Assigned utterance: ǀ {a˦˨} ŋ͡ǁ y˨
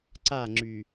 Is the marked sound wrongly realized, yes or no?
no